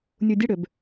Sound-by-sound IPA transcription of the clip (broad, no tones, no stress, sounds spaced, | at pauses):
nʲ u dʲ ə ɽ ø b